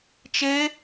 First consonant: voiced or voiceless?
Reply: voiceless